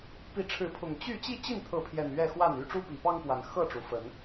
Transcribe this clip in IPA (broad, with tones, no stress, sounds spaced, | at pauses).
p i˨˦ ʈ͡ʂʰ ɻ̩˨˦ pʰ ʊ˨˩ ŋ t͡ɕ y˥˨ t͡ɕ i˥˨ t͡ɕ i˥˨ n t̪ʰ ɤ˨˦ pʰ j ɛ˨˩ n ɥ ɛ˥˨ x w a˥˨ n y˦ ʈ͡ʂ u˦ p i˨˩ p ɑ˦ ŋ p w a˨˩ n x ɤ˥˨ ʈ͡ʂ u˨˩ f ə˨˦ n